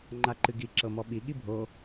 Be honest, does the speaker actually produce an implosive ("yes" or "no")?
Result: yes